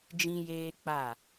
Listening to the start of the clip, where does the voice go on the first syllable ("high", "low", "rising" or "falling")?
high